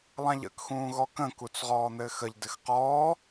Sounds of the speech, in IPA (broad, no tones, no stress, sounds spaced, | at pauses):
lˠ ã ʎ ə̰ k x ũː ɣ ɔ k ə̃ k u t͡s ʁ ɔː n̪ ɘː x ə ʎ d ɘ x q ɔː